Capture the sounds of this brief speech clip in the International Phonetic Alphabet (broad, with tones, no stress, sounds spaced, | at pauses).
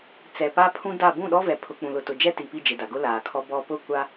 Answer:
t͡s ɛ˨ p a˦ pʰ ũ˦ d a˦˨ b ũ˦˨ ɗ ɔ˦ v ɛ˨ pʰ ʊ˨ k͡p ũ˨ l ʊ˨ t ʊ˨ d͡ʒ ɛ˦ t i˨ p i˦˨ d͡ʒ ɪ˨ d a˨ ɡ ʊ˦ l aː˨ kʰ ɔ˦ b ɔ˦ p ʊ˦˨ kʷ a˦